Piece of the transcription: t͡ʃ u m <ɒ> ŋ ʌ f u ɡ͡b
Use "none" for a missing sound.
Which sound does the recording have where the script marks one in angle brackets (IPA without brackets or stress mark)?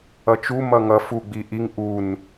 ʌ